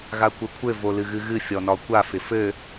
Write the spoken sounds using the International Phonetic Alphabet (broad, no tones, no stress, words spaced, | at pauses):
ɣakʷɘkʷʰɘ volɨɣɨɣɨ fʲɔnɒkʷa fɪfɘ